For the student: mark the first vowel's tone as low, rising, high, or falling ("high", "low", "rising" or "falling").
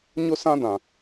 high